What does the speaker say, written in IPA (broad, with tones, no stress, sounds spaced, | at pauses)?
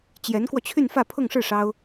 t͡ɕ j ɛ˧˥ n k w ɔ˧ t͡ɕʰ y˥˧ n f ä˥˧ pʰ ʊ˥˧ ŋ ʂ ɻ̩˥˩ ʂ ɑ˥ ʊ̯